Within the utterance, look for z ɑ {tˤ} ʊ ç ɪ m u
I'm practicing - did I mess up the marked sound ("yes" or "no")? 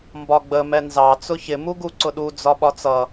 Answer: yes